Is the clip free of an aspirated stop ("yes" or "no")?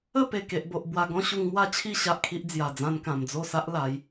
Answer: no